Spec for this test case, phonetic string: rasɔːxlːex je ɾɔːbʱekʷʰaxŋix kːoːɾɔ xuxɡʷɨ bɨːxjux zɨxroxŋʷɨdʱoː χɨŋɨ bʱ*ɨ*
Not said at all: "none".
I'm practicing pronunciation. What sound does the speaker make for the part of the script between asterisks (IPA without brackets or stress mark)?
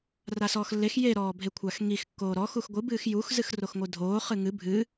ɨ